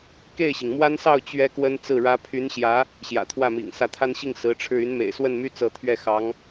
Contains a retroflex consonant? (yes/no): yes